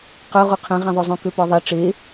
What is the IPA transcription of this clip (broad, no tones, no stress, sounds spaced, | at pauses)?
q œ ʁ u qʰ ẽ ʁ ɛ̃ ðˤ o zˤ ũ k ø p ɔ ðˤ ɛ ʈ͡ʂ e